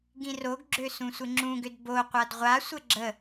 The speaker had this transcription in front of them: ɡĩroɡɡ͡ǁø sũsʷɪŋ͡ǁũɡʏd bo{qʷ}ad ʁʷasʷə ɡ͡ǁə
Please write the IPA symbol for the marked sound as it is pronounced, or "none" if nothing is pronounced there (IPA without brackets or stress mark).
qʷ